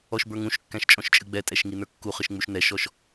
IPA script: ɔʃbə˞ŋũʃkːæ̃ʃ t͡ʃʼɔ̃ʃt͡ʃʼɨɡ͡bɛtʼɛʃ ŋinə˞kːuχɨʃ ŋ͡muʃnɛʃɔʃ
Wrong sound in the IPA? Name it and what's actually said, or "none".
none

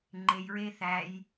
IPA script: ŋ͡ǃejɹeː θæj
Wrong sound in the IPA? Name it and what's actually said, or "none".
none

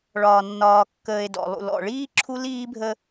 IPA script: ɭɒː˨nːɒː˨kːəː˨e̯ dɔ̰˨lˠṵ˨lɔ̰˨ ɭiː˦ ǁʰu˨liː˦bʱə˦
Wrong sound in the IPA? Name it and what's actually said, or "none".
u˨ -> u˦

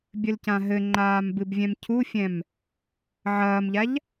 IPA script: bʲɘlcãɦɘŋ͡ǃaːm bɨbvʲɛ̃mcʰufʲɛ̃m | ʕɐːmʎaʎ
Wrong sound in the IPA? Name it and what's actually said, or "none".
none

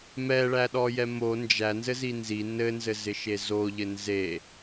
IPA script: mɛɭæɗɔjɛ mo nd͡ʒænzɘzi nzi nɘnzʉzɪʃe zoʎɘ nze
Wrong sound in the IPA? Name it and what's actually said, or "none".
ʉ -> ɘ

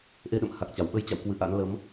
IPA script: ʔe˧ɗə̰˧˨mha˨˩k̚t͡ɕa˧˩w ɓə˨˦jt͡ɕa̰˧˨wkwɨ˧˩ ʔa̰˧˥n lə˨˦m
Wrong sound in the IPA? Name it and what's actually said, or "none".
none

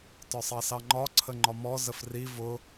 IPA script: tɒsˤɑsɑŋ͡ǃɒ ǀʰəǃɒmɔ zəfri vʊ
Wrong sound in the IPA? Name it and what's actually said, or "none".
ǃ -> ŋ͡ǃ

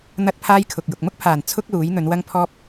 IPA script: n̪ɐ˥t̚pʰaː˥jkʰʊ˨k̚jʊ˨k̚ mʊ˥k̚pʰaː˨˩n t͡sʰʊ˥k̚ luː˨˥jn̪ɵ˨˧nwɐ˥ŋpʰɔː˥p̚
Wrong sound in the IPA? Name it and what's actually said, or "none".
none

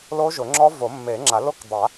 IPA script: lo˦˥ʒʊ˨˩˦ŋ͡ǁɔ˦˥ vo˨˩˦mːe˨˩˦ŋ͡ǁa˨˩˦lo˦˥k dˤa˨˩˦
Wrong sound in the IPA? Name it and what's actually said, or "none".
none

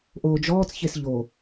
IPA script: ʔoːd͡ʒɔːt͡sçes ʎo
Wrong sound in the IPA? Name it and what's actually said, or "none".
none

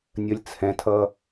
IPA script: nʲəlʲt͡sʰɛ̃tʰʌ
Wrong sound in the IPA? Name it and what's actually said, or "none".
none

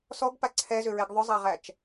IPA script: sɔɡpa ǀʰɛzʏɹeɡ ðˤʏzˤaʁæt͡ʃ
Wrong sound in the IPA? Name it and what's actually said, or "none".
none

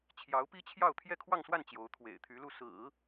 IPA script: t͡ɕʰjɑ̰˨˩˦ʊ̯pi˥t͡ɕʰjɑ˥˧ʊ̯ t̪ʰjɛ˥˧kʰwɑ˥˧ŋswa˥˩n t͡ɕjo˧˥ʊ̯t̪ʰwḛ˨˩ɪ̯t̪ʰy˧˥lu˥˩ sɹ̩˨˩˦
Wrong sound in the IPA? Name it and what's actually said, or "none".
ɑ̰˨˩˦ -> ɑ˧˥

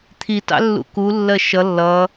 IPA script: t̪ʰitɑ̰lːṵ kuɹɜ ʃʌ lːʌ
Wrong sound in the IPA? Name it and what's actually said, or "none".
ɹ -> lː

